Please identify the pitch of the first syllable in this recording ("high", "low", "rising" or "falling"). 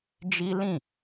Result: high